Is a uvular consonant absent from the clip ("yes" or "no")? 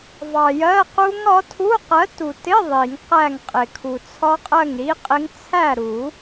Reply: no